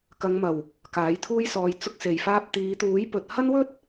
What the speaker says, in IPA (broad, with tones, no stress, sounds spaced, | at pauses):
k ɐ˨˧ ŋ m ɐ˨˩ w | k aː˨˥ j t̪ʰ uː˥ j s ɔː˧ j t͡s ʊ˧ k̚ s e˨˩ j f aː˧ p̚ t̪ iː˨˧ t̪ uː˨˥ j p ɵ˨ t̚ h ɐ˥ n w ɵ˥ t̚